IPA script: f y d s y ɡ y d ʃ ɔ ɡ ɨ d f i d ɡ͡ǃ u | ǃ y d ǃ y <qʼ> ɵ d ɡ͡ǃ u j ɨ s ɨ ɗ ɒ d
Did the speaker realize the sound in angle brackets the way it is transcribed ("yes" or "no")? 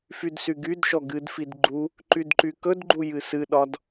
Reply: no